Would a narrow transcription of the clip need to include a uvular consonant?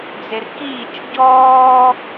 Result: no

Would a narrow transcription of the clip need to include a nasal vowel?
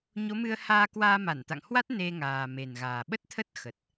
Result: no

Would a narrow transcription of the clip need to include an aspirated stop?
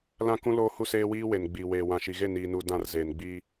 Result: no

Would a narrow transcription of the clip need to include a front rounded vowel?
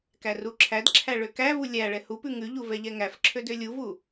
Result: yes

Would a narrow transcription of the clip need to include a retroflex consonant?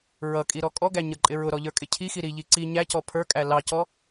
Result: no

